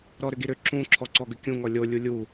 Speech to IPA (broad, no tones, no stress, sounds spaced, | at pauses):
ɾ ɔ ɾ ʏ ɡ i ɾ ʏ ǁ ũ ǁʰ ɔ ǀ ɔ ɡ ʏ kʲ ũ ŋ ɔ lʲ o lʲ u lʲ u